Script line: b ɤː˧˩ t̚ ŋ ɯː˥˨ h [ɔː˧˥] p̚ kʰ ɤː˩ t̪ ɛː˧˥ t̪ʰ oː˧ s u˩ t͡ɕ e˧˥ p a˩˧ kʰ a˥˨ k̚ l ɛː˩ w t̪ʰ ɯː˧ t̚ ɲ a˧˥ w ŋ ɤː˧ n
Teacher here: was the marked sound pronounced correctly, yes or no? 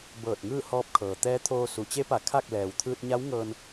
yes